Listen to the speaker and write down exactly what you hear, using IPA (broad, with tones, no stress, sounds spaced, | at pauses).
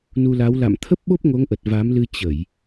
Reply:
n u˧ l a˨˦ w l a̰˧˨ m t̪ʰ ə˦˥ p̚ ɓ o˦˥ p̚ ŋ o˨˦ ŋ ʔ ə˨˩ t̚ v a˨˦ m l ɨ˧ t͡ɕ ə˧˩˨ j